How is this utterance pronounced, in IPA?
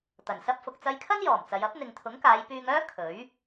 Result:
t̪ɐ˨˩nsɐ˥p̚fʊ˧k̚ t͡sɐ˧jkʰɐ˥njɔː˨˩m t͡sɐ˨˧j ɐ˨˥p̚n̪ɪ˨ŋt̪ʰʊ˨˥ŋkaː˨˧j pyː˧ŋœː˥ kʰɵ˨˥ɥ

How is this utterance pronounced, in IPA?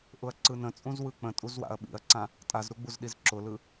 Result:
ʔʊɐ̯ǀɯnə̃t͡sʼũz wɯk͡pə̃ tʼuzwa̰ɐ̯ɓḭɐ̯ǀã | tʼazɾuɡ͡buzɗiz ǁʊlɯ

